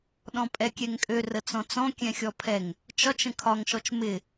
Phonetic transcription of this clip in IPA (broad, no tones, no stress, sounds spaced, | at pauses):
ɗ ɔ̃ pʼ ɛ kʲ ɛ ŋ kʼ ø r ə t͡s ɔ̃ t͡s ɔ̃ kʲ ɛ̃ xʲ ɔ pʰ ɛ ŋ | t͡ʃ ɒ t͡ʃ ə̃ kʰ ɒ ŋ ʃ ɔ t͡ʃ m ɪ